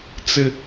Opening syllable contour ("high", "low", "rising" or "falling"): high